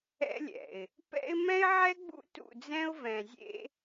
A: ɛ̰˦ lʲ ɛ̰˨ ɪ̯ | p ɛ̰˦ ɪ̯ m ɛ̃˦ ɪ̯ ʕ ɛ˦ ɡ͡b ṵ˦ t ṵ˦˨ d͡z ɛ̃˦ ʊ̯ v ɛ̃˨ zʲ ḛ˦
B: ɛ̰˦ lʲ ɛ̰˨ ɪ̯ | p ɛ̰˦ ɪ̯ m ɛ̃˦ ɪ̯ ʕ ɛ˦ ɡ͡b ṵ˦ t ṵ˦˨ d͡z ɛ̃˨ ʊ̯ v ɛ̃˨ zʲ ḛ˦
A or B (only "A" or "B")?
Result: A